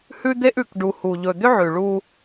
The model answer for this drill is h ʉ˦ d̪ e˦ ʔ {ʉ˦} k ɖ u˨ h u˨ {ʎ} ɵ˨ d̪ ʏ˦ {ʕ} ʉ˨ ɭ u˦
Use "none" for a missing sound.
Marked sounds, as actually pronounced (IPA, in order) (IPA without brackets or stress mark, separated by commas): ʉ˨, ʎ, ʕ